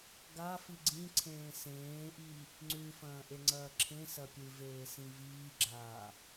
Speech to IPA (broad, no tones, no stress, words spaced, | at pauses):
ɡafi ɡ͡ǀĩǀʰẽː sẽːʔi | ŋ͡ǀʉfɐ̃ː ʔeŋ͡ǀɐːǁʰẽsɐ pʲɨveː sĩviːɡ͡ǁaː